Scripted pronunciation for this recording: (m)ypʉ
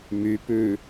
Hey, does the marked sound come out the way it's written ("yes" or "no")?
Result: yes